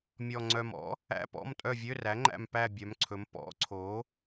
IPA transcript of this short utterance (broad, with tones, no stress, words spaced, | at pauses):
mʲɔ˨˩ŋ͡ǀœ˨˩mɔ̰˩˥ | æ̰˧˥˧pɔ̰˧˥˧m tʼœ˦˨vʲø˧˥˧ræ˩˥ŋ͡ǃæ̰˦˨m pæ˦˨ bʲœ˩˧mǀʰɵ˩˧m pɔ̰˩˥ǀʰo˩˥